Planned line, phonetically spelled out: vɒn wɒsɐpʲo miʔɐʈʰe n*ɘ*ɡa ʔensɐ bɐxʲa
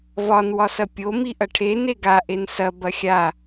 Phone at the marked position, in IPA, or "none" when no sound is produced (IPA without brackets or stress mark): e